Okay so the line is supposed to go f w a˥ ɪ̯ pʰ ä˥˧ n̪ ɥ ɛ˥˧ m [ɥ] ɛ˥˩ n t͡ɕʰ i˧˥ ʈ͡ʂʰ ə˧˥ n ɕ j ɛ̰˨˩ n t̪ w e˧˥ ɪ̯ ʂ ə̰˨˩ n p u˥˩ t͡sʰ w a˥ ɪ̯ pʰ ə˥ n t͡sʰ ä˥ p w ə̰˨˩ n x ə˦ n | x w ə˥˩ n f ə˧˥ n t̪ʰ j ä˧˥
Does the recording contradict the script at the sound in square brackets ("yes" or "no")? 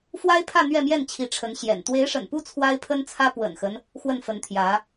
yes